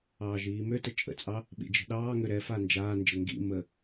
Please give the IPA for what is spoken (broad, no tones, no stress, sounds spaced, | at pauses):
ɑː ʒ iː m ø t ə t͡ʃʼ ə̰ t͡sʼ ɑ | ɓ ḭ d͡ʒ ə̤ ɗ ɑː ŋ ø ɾ ɛ f a n d͡ʒ aː n d͡ʒ ə ŋ ɡ ḭ m ə